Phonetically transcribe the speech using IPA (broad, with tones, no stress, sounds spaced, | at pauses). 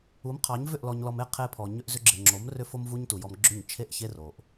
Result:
u˨˦ m qʰ ɑ˨˦ ɲ v ʏ˦˨ ʔ l ɔ˨ ɲ l ɔ˨ m e˧ qʰ e˧ pʰ ɔ˨ ɲ ʏ˧ ʔ z ʏ˧ ɡ͡ǁ e˨ ŋ͡ǁ o˨˦ m r ʏ˧ f o˧ m v u˦ ɲ t u˨ j ɔ˧ m ɡ͡ǁ ʏ˦˨ ɲ t͡ʃʰ e˦ ʔ ç e˦ r o˨ ʔ